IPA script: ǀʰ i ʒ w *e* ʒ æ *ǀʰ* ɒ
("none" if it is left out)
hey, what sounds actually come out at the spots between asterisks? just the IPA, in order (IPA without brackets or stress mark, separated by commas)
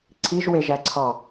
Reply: e, ǀʰ